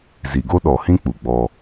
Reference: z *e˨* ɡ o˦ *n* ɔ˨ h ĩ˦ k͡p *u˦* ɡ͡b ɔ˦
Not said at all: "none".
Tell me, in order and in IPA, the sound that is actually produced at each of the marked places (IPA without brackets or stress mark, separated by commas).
i˨, ɗ, u˨